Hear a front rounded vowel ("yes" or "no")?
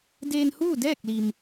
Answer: no